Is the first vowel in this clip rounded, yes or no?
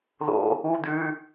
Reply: yes